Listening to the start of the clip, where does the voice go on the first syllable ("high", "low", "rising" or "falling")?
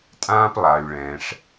high